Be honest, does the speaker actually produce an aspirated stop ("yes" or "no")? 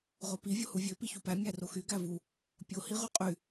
no